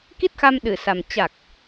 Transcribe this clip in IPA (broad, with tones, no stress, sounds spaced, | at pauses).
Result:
k i˦˥ t̚ x a˧ m ɗ ɨ˧˩ s a˨˩ m t͡ɕ a˨˩ k̚